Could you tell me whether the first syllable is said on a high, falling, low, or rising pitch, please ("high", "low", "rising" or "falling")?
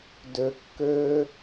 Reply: low